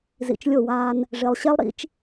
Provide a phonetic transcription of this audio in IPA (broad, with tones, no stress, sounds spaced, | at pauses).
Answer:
z ḭ˨ t͡ʃ lʲ o˦˨ w aː˦ n | ʐ e˨ lˠ ɕ ɛ˦ lˠ ɾ ḭ˦ t͡ʃ